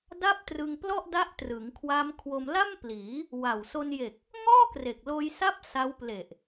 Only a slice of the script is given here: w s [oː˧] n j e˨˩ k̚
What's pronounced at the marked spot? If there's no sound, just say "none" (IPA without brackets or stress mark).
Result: o˧